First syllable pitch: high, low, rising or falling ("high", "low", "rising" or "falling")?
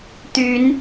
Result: rising